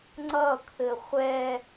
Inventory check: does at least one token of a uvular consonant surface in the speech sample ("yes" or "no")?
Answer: yes